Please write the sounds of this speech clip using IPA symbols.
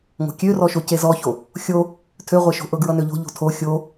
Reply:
ŋ o̤ kʲ ø r ɔ ʃ o c e z ɔ ç o | xʲ o | tʰ ø ʁʷ e ʃ o̤ ʔ ɤ ɡ ɹ ʌ n ø ʎ o̤ ʎ o̤ tʰ o xʲ o

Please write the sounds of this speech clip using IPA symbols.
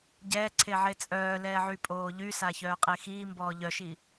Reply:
ɟ ɛː ǀʰ e ʕ e t͡sʼ œː l ɛː ʕ y pʼ oː ʎ y s a ç œː qʼ e x iː m b ɔː ʎ œ ʃ i

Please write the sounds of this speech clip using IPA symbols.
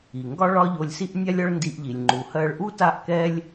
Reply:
i˩ ŋ ɡ ɒ˥ ɭ ɒ˥ ʎ o˧ lʲ s i˥ ʔ nʲ a˥ lʲ ɒ˥ ɭ n d i˧ ʔ ʎ i˩ lʲ ŋ͡ǃ u˩ h ɜ˧ ɭ ʔ u˥ t a˥ ʔ k ɛ˥ lʲ

